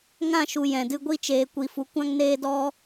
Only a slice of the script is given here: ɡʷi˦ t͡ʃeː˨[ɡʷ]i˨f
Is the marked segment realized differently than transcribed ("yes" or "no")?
yes